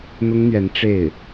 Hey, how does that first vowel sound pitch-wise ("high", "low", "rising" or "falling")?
high